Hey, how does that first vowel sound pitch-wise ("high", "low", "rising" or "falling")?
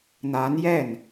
rising